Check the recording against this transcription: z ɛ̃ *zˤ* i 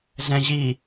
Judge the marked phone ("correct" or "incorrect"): incorrect